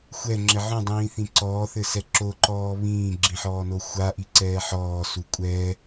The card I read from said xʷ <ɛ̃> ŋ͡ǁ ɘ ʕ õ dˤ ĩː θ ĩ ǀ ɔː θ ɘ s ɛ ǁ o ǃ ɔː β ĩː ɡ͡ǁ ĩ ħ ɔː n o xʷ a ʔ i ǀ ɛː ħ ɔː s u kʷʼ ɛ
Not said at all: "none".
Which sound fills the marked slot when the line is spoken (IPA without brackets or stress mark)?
ɛ